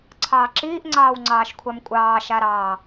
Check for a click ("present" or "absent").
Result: present